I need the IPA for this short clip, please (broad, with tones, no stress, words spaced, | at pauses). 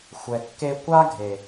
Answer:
xʷɛ˨kːe˧kʷa˦ɡʱe˨